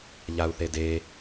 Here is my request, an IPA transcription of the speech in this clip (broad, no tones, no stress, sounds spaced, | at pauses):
ʎ a u̯ θ e d e